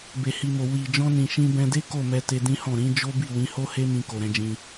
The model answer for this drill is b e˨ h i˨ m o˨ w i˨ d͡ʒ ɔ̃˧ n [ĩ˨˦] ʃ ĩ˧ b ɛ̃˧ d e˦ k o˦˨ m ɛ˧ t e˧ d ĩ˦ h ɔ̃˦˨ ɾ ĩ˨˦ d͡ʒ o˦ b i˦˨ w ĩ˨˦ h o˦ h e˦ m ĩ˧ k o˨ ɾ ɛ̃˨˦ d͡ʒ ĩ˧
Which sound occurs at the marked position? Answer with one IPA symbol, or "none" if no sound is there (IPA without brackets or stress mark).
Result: ĩ˨